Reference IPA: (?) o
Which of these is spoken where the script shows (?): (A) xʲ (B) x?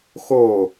B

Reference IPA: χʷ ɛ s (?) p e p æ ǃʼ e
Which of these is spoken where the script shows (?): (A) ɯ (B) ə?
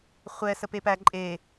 B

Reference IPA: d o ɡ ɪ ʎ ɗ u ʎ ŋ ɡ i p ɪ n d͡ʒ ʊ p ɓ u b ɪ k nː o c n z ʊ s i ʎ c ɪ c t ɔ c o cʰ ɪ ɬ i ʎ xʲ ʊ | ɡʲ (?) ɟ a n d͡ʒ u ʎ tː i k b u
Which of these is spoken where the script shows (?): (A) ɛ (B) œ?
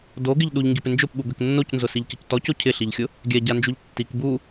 A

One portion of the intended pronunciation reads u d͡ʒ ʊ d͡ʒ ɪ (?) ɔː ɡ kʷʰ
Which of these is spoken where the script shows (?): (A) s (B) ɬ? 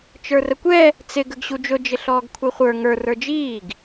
B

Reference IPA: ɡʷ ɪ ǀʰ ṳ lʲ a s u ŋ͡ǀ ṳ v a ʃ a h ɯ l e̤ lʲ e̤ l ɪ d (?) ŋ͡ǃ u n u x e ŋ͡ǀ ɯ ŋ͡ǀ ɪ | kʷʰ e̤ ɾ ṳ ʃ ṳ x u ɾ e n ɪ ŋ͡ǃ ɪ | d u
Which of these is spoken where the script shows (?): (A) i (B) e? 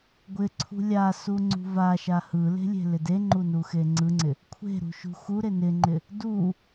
B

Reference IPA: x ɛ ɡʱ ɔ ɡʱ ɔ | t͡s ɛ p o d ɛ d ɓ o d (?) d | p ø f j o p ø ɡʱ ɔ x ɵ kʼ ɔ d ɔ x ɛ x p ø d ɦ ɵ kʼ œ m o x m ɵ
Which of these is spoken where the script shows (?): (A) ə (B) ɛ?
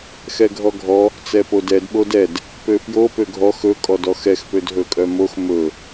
B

